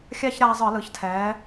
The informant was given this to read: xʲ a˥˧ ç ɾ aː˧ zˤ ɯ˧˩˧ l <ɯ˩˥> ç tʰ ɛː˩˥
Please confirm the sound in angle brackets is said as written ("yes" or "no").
yes